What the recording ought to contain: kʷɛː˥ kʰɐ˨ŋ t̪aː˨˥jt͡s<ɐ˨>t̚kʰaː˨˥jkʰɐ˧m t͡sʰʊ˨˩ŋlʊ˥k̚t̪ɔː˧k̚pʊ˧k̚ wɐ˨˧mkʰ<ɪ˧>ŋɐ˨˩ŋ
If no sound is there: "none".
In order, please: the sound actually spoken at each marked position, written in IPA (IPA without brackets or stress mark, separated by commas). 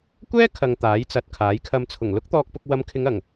ɐ˨, ɪ˨˧